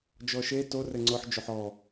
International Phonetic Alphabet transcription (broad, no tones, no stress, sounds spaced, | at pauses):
d͡ʒ ɔ ʃ e t o r ɘ ŋ͡ǀ ʊ ħ d͡ʒ o ħ ɔ